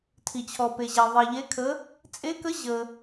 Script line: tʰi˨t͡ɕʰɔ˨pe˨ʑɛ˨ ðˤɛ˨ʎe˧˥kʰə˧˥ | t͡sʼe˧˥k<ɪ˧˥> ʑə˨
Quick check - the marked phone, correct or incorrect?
incorrect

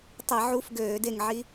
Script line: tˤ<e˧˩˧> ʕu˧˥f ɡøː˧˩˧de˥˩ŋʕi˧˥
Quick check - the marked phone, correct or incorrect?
correct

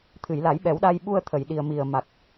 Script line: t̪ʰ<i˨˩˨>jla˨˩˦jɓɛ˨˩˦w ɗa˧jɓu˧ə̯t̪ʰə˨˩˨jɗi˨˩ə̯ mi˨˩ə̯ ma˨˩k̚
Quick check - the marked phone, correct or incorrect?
incorrect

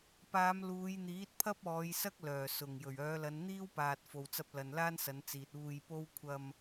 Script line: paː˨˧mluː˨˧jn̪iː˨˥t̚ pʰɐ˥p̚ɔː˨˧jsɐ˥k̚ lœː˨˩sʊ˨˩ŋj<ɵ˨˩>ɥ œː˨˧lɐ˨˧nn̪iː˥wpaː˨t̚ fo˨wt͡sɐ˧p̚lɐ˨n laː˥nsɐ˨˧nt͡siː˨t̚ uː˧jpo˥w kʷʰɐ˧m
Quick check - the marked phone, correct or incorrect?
correct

